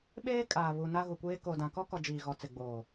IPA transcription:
ɓ eː˦ kʼ aː˨ β u˨ n a˦ ɣ u˨ kʷ eː˦ k o˨ d ã˨ k ɔ˦ k ɔ˨ d͡ʒ iː˨ ɣ ɔ˨ t͡s ɪ˨ ɡ͡b oː˨

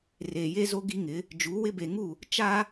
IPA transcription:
r eː˨ j e˦ z o˦ ɡ i˦ ŋ ɪ˨˦ | d͡ʒ u˨˦ w ɪ˦ b e˨ ŋ u˦˨ | t͡ʃ a˦

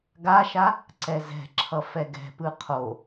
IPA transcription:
ɡ a ʃ a | ǀ ɛ z ɛ̤ ǁʰ ʌ f ɛ ɡ ɛ̤ p ɯ qʰ o

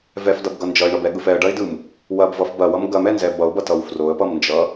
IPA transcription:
v ɛ f d ʌ b ɡ ʌ n d͡ʒ ʌ ɪ̯ ɳ ʌ b ɛ ɠ ɯ f ɛ ə̯ ɖ ɐ ɪ̯ d ɯ m | w ɐ b v ʌ f b ɐ w ʌ m ɡ ɐ m ɛ n z ɛ b ʌ ʊ̯ b ʌ t ʌ w f r o ə̯ p ʌ m n d͡ʒ ʌ

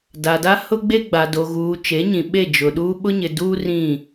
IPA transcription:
d a˨ d a˦ h ʊ˦ ɡ͡b e˦ ɡ͡b a˨ d o˨ ɣ uː˨ t͡ʃ e˨˦ ɲ ĩ˨ ɓ e˦˨ d͡ʒ ʊ˨ ɗ uː˦ ɓ ʊ˦ ɲ ɪ˨ d uː˦ r ĩ˦˨

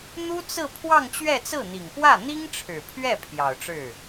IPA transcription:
n̪ u˥ t͡s ɹ̩˥˧ pʰ w ɑ˥˧ ŋ t͡ɕ ɥ ɛ˥˧ t͡s ɹ̩˥˩ n̪ i˨˩ ŋ p w ä˥˩ n̪ i˥ ŋ ʈ͡ʂʰ ɻ̩˨˩ pʰ ɥ ɛ˥˩ pʰ j ɑ˨˩ ʊ̯ ʈ͡ʂ ɻ̩˥˩

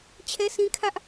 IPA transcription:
t͡ɕʰ ɛ˦ s ĩ˦ kʰ ä˦ ʔ

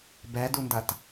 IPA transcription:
b ɛ d u n d ɐ t

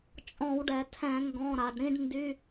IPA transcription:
t͡ʃʼ ɔ̃˧˩˧ w ɖ ɛ˩ tʰ ɛ̃˧˩˧ ŋ ɡ ɔ̃˩˧˩ ɾ a˩ ɖ ɾ ĩ˦˨ ɖ n d y˧˥˧

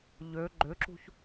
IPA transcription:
ʎ ø ɡ͡ǃ ʏ ǁ ṳ ç

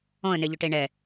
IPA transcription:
ɔ̃ ə̯ n e ʎ ʊ ʈ e ɳ ɛ

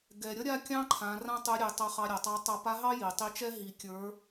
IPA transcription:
ɡ ɛ˩ ɾʲ ʌ˥ ɾʲ a˥ kʲ ɑ̃˥ ǃʰ ã˩˧ r ã˥ tˤ ɘ˧˥ ɾʲ e˩˧ tˤ ʌ˧ χ ɑ˧ ɾʲ a˩ tˤ ɑ˧˥ tˤ ʌ˧˥ p a˧˥ ɦ ɑ˥ j i˩ tˤ i˧˥ t͡ʃ ɛ˥ ɦ i˧ kʲ ə˞˧˥

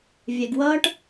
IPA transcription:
vʲ ɛ˨ ɡ w ʌː˧ ʈ

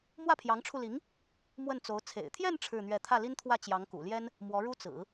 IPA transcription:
m w ä˥˩ pʰ j ɑ˧˥ ŋ ʈ͡ʂʰ u˧ l i˧˥ ŋ | m w ə˥˩ n t͡s o˧˥ ʊ̯ t͡sʰ ḛ˨˩ ɪ̯ t̪ʰ j ɛ˥˧ n ʈ͡ʂʰ ɻ̩˥˧ n̪ ɥ ɛ˥˧ t̪ʰ ä˥˩ l i˥ n t̪ʰ w ä˥˩ t͡ɕ j ɑ˧˥ ŋ k ṵ˨˩ l j ɛ˥ n | m w ɔ˧˥ ɻ u˥ t͡s ɹ̩˨˩˦

